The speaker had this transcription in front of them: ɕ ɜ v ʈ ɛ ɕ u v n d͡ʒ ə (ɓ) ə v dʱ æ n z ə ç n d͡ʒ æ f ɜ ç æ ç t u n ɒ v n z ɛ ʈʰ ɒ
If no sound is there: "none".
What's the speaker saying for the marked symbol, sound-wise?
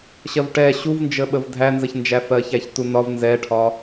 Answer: ɓ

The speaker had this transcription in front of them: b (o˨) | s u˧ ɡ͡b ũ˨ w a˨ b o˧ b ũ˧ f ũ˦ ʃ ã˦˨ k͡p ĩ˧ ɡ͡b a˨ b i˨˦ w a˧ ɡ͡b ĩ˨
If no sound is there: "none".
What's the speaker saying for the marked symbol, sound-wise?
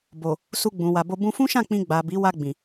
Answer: o˨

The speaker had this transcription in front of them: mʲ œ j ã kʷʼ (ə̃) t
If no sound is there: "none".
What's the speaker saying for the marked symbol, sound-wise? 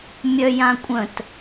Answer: ə̃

